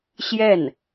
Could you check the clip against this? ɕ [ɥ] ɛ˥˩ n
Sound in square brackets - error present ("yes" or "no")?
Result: yes